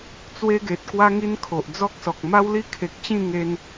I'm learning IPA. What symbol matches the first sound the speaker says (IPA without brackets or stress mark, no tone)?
t͡s